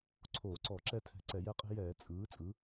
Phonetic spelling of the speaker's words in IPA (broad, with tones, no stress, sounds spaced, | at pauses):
ǀʰ oː˧˩˧ ǀ ɔ˧˩˧ ǁ ɛ˦ tʰ ɛ̤˧˩˧ ǀ ɛ˧˩˧ j ɛ˦ qʼ ɛ̤˦ j ɛː˧˩˧ t͡sʼ ɯː˩˥ t͡sʼ ɯ˩˥